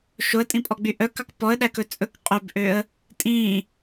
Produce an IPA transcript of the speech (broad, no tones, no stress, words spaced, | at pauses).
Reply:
ʃoə̯tʼĩpʼɔɡ͡by ʔœ kɑkpɔə̯ ɗækɵt͡sʼɵk qʼøbʔøə̯ | tʼĩ